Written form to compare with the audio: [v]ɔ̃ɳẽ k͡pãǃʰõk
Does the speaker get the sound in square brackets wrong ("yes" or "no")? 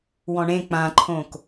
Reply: yes